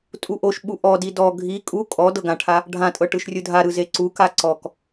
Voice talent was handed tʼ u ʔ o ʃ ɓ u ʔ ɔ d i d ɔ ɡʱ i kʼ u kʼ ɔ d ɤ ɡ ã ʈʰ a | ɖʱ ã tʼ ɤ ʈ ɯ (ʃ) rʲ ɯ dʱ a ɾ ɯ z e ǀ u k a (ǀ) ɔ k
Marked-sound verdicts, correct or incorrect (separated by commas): correct, correct